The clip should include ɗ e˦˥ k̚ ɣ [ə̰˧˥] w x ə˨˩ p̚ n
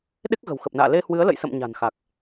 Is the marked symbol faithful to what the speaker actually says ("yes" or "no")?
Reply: no